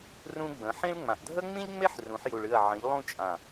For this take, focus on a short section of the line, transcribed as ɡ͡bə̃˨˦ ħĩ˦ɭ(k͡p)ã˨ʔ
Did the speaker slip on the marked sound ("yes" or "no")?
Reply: yes